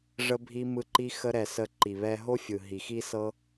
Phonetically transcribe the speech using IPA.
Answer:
ʐ ə˦ bʱ i˦ m ɯ˦ ǃ i˦ x ə˦ ɾ ɛ˧ s ə˧ ǃ i˨ β ɛ˧ ɦ o˦ fʲ ɯ˨ ɦ i˨ x i˦ s ɤ˦

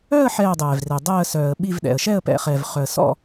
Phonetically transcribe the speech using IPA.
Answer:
œ˥˧ ə̯ ħ ɛː˥˧ dˤ ɛː˨ v r e˨ dˤ ɛː˥˧ ə̯ s œː˨ ə̯ ɓ i˥˧ v ɗ ɛ̰˨ ə̯ ʃ ɛ˥˧ ə̯ p ɛ̰˨ χ ɛ˨ v χ œ˨ ə̯ s ɔ̰˥˧

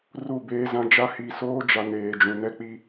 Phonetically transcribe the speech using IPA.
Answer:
r u˦˨ b eː˦ z ã˦ d͡ʒ a˦ h i˨ s oː˦ d͡ʒ a˨ n eː˨ d͡ʒ ũ˨ n ɛ˦ k͡p i˦

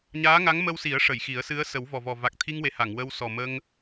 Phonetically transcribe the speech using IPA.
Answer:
ɲ aː˧˥ ŋ a˧˥ ŋ m ə˧ w s i˨˩˦ ə̯ ʂ ə˨˩˨ j x i˨˩˦ ə̯ s ɨ˧˥ ə̯ s ə˨˩˦ w v ɔ˨˩ v ɔ˨˩ v a˨˩ k̚ t̪ʰ i˧ ŋ w e˨˩ h a˨˩˨ ŋ w ə˧ w s ɔ˨˩ m ə˧ ŋ

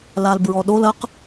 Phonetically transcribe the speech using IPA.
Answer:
l a l b ɹ ɔ ɗ o l ɐ q

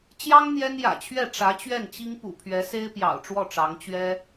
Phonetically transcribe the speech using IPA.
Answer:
t͡ɕ j ɑ˥ ŋ n̪ j ɛ˥ n j ä̰˨˩ t͡ɕʰ ɥ ɛ˥˩ ʈ͡ʂ ä˧˥ t͡ɕ ɥ ɛ˥˩ n t͡ɕ i˥ ŋ p ṵ˨˩ pʰ ɥ ɛ˧˥ s e˥ ɪ̯ p j ɑ̰˨˩ ʊ̯ ʈ͡ʂ w ɔ˥˩ ʈ͡ʂ ɑ˧˥ ŋ t͡ɕ ɥ ɛ˥

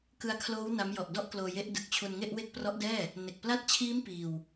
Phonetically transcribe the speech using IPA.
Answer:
k ɯ˧ a̯ kʰ l oː˦˥ w n a˦˥ m j ɔ˨˩ ʔ d ɔ˥˩ ʔ k l oː˧ j e˦˥ ʔ d ɯ˨˩ k̚ t͡ɕʰ u˧ n ŋ e˥˩ ʔ w e˥˩ k̚ p r ɔ˦˥ ʔ d ɛː˥˩ | n e˨˩ k̚ p l a˦˥ t̚ t͡ɕʰ iː˦˥ m p iː˧ w

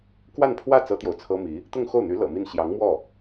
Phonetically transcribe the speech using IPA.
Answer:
k w a˥˧ n pʰ w ä˥˩ t͡s ɤ˥ t̪ j o˨ ʊ̯ t͡sʰ ɤ˥ m i˧˥ | t̪ ʊ˥˧ ŋ x o˥˩ ʊ̯ n̪ y˧˥ l ɤ̰˨˩ m i˥˩ n ɕ j ɑ˧˥ ŋ m w ɔ˥˩

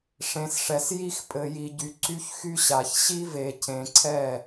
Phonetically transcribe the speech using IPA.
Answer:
ʂ ẽ˨ s ʂ ɛ˨ s j i˦ x pʼ ɘ˨ j i˨ ɟ y˨ ǀ y˦ ç x y˦ ɕ a˨ ç ɕ i˦ v e˨ cʰ ẽ˨ ǀʰ ɛ˦˨

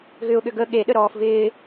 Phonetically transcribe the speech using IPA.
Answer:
ɣ ʏ ʊ̯ ɠ ʏ ɡ ə ɠ e ɗ ə ɾ ɔː f v ɪː

